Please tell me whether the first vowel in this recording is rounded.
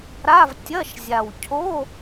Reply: no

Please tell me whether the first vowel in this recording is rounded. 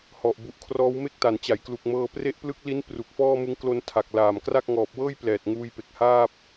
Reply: yes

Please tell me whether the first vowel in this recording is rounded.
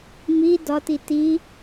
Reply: no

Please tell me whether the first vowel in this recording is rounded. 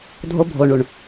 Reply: yes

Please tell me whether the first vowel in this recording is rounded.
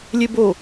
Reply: no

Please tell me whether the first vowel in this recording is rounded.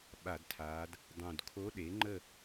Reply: no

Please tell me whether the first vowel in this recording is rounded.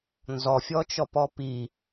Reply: yes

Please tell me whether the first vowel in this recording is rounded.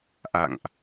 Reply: no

